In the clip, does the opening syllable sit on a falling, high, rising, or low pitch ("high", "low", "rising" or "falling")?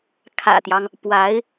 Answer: low